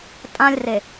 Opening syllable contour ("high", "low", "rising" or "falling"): high